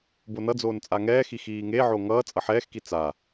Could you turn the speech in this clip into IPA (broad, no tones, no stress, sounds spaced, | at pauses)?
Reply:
b o n ʌ d͡z oː n t͡sʼ a ŋ ɛː x i x iː ŋ e ʕ o ŋ ʌː t͡sʼ ʌ ħ ɛː x k i t͡s a